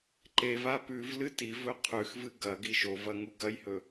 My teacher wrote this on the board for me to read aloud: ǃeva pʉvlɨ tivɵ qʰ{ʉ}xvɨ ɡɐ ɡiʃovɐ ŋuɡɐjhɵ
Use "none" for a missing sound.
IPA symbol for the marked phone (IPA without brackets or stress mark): ʉ